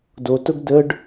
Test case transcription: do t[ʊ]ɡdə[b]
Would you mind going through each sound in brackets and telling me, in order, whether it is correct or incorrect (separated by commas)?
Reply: correct, incorrect